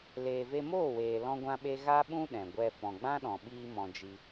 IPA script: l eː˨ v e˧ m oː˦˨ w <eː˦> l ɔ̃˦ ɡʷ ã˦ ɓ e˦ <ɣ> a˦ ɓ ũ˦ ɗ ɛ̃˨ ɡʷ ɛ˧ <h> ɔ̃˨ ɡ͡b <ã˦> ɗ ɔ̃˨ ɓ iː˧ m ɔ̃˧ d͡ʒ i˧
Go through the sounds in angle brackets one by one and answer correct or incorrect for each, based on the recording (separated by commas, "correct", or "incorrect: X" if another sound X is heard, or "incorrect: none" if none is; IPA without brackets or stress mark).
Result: incorrect: eː˨, correct, incorrect: f, correct